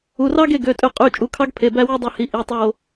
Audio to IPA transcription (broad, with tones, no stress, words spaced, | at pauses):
u˩˧˩rɑ˦ɡe˦˨ ɡø˩˧˩tʼø˦˨ qʼy˩˧˩ t͡ʃʼu˩˧˩kʰɑ˦ɡpʰe˩˧˩ bæ˦wɯ˦dˤæ˦˨hi˩˧˩ ʔi˩˧˩tˤo˦˨